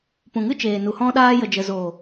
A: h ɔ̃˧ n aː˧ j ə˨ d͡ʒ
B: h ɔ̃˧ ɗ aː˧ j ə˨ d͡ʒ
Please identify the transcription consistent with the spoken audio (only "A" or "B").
B